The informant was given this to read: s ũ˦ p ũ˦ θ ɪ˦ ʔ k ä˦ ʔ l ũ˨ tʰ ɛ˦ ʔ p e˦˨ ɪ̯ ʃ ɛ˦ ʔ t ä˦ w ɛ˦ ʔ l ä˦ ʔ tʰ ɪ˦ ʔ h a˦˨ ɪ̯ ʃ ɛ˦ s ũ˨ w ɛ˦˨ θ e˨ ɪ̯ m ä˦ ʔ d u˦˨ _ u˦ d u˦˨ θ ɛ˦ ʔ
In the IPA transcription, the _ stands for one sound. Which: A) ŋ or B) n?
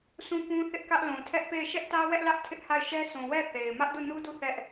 B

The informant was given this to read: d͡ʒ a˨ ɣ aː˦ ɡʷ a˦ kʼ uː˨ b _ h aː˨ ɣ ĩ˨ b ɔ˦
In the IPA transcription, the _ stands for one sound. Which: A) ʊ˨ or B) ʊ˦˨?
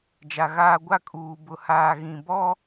A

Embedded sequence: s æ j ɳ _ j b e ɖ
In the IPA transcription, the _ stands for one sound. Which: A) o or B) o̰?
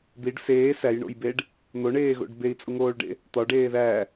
B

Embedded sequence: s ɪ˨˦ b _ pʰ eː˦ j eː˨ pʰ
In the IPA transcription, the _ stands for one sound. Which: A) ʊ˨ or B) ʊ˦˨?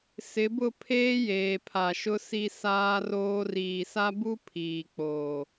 B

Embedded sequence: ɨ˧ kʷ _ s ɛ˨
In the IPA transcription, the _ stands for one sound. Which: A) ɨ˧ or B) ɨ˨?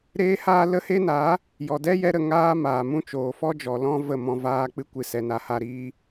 B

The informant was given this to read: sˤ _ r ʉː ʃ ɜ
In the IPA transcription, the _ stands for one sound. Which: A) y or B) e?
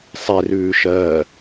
B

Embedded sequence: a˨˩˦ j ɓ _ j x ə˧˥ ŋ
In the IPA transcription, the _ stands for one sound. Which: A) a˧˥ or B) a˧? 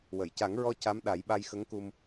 B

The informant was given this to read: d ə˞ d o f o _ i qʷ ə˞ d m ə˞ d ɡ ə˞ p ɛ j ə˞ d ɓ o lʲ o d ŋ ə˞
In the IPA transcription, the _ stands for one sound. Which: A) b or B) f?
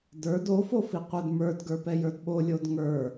B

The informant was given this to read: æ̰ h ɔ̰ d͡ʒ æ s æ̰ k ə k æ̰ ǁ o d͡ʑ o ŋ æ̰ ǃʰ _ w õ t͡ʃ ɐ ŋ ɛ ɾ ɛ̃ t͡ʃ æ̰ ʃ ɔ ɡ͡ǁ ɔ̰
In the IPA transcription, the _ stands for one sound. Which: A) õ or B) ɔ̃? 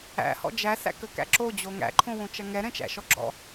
A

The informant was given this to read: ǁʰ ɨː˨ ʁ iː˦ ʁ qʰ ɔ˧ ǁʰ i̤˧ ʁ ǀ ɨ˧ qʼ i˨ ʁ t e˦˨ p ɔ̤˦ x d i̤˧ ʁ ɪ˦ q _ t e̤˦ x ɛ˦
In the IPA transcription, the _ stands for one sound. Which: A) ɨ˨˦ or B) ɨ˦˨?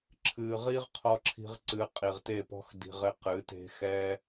A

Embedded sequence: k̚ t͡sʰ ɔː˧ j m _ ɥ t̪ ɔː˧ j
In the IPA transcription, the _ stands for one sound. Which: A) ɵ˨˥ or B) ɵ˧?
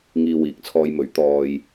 A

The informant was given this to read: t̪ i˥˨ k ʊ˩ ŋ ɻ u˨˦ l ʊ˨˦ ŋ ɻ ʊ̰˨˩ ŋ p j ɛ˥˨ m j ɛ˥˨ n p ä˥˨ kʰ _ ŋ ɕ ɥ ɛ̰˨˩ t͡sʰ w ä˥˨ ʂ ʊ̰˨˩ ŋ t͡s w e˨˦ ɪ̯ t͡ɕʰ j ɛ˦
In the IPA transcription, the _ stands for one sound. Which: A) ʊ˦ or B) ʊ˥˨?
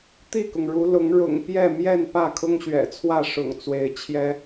A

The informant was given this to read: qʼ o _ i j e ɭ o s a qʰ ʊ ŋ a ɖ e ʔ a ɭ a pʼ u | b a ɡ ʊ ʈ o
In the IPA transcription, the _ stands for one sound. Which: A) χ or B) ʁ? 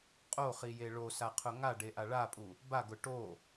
A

